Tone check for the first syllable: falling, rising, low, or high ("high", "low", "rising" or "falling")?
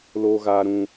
low